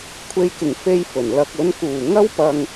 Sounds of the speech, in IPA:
kʷʰ e˧ j k ɪ˨˩ ŋ f e˧ j f ɵ˨˩ n l ɐ˧ k̚ ɵ˨˧ n k uː˨˩ ŋ ɐ˥ w p ɐ˧ ŋ

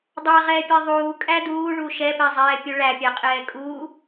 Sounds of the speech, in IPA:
dˤ a ʁ ɛː pʲ ɛ ðˤ uː kʼ æ d uː ɭ u ʃ ɛ p ɛ zˤ ɛː pʲ u ɭ æ pʲ a qʼ ɛː kʼ uː

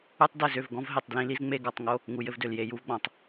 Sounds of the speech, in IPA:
u˦ tˤ d ɘ˦˨ z ø˦˨ v ɡ ɔ̃˦ v ɦ e˨ tˤ d l ĩ˦ l i˦ z ŋ͡m e˦ ɡ ɔ˨ tˤ ŋ o˦ | ŋ u˨ j ɘ˦ v d ø˨ l j e˨ j u˦ v ɡ͡b ɔ̃˨ tˤ

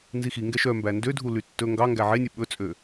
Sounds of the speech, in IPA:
n z i x i ŋ ɡ ɛ ʃ œ m b æ n d ø dʱ u l y tː ɵ ŋ ɡ ɑ ŋ ɡ æ ʕ e nʲ ɵ ɓ ɵ t͡sʼ ø

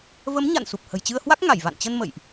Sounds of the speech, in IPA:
v ə˨˦ m ɲ a̰˧˨ n s u˨˩ p̚ h ə̤˨˩ j t͡ɕ ɨ˧ ə̯ h w a˦˥ k̚ ŋ a˧˩ j v a̰˧˨ n t͡ɕ ə˧ n m ə̰˧˨ j ʔ

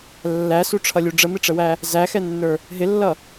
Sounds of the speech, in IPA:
lː æ s u ʈ͡ʂʰ ʌ lʲ u ɖ͡ʐ ə m ɪ ʈ͡ʂ ə w æ | z æ x ɛ nː ə˞ | ɦ ɪ lː ʌ

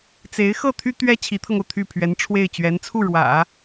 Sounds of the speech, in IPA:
t͡s e˧˥ ɪ̯ x ɤ˥˩ t̪ʰ y˥ t̪ ɥ ɛ˥ t͡ɕʰ i˧˥ t̪ʰ ɤ˧ ŋ o˩ ʊ̯ t̪ʰ y˥˩ pʰ ɥ ɛ˧˥ n ʈ͡ʂʰ w e˥˩ ɪ̯ t͡ɕ ɥ ɛ˧˥ n t͡sʰ u˥˩ ɻ w ä̰˨˩˦

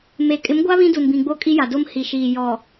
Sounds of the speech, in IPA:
m e˨ kʼ ɪ˨˦ m ɡʷ a˦ β ĩ˦ d u˨ n b ĩ˨ ɡ͡b o˦ kʼ i˦ j a˨ d o˦ m h i˨ ʃ iː˨ j ɔ˨

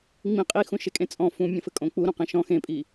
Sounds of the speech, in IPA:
ŋ͡m ĩ qʼ i x ũ ʃ e kʼ ẽ t͡sʼ ɔ̃ f ũ mʲ ɐ̃ f ɘ kʼ õ k͡p u ɾ õ q ẽ ʃ ɔ̃ x ẽ pʼ i

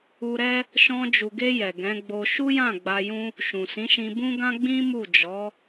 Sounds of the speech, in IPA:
u˧ ɾ ɛ˦ | ʃ ɔ̃˧ d͡ʒ u˨ ɡ e˧ j ɛ˨ ɡ ɛ̃˨˦ ɡ͡b o˧ ʃ u˦ j ã˦˨ ɡ͡b a˧ j ũ˦ | ʃ ũ˨ s ĩ˨˦ ʃ ĩ˧ b ũ˦ ɡ ã˦ ɡ͡b ĩ˦ m u˦˨ d͡ʒ ɔ˨˦

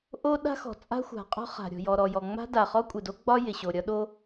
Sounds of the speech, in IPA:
ʔ o˥ ɗ a̤˥ x ɔ̤˩ t͡sʼ a̤˥ xʷ a̤˩ qʼ ɔ̤˥ χ a̤˩ ɾʲ ɔ̤˩ j ɔ˩ ɾ ɔ˩ j ɔ˩ ŋ͡m a̤˥ d a˩ χ ɔ˥ kʷʼ ɪ˩ d o˥ ɡ͡b ɒ˥ j ɪ˩ ɕ o˩ ɾʲ ɒ˥ ɗ o˥

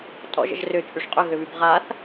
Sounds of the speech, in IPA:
tʼ ɔ̰ ʒ ə̰ ʒ r ʏ t͡ʃʼ y ʂ qʼ ʏ ɣ ʏ β y b ʁ a θ

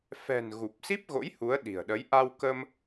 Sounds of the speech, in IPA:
f ɛ̤˨˩ n ɣ u˨˩ p̚ s i˦˥ p̚ ɣ o̰˧˥ j h u˨˦ ə̯ ɗ i̤˨˩ ə̯ ɗ ə˨˦ j ʔ a˧ w k ə˧ m

